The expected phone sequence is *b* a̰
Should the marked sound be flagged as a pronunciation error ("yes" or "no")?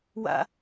yes